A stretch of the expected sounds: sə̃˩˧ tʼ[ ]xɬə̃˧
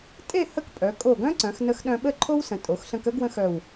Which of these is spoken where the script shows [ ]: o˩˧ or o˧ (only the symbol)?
o˩˧